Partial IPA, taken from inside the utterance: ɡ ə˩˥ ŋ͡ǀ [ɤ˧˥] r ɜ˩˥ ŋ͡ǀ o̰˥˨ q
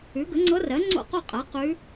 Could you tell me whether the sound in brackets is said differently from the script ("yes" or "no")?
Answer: no